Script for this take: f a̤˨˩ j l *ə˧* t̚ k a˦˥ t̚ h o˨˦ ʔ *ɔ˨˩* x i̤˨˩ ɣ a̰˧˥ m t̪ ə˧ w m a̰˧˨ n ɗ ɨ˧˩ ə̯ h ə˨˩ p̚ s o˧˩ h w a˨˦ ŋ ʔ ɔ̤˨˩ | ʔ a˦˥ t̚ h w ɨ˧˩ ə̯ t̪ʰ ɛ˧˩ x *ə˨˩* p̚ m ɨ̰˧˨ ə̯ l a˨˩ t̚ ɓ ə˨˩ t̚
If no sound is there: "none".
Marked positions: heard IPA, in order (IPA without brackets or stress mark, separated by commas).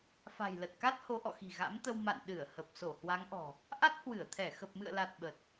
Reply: ə˨˩, ɔ̰˧˨, ə˨˩